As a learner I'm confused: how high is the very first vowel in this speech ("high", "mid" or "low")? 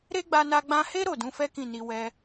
mid